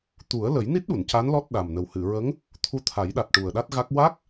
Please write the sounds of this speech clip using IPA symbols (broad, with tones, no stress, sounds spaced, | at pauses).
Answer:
t̪ u˨˩˦ ə̯ l ə˨˩˦ j n i˦˥ t̚ ɗ u˨˩˨ n c a˧˥ n l ɔ˦˥ t̚ ɗ a˨˩ m n ə˨˩ w h ɨ˨˩˨ ɹ ə˧˥ ŋ | t̪ʰ u˧˥ t̪ʰ a˨˩˦ j ɗ a˨˩ t̚ ʈ u˨˩ ə̯ ɗ a˦˥ t̚ ɣ a˦˥ k̚ w a˦˥ k̚